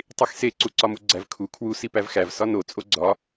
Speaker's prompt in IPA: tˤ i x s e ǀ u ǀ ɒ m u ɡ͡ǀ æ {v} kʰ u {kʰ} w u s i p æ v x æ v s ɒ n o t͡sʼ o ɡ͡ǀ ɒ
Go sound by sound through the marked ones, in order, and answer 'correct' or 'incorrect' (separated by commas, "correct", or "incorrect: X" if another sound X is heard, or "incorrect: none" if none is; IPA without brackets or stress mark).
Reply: correct, correct